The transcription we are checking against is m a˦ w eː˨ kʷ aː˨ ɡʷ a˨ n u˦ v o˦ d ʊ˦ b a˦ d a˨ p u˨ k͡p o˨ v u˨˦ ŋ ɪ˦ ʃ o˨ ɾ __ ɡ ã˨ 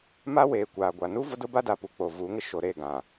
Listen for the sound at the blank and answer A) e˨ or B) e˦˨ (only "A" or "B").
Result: B